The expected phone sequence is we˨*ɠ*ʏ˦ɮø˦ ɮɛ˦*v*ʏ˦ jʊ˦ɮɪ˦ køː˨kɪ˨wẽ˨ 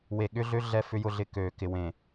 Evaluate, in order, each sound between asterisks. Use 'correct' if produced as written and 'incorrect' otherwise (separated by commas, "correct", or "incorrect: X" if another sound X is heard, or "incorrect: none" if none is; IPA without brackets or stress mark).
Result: correct, incorrect: f